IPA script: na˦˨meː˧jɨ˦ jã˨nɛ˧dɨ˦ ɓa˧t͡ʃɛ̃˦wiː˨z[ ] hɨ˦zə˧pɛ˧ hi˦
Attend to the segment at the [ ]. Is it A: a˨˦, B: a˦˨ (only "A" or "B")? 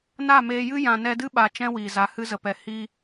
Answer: A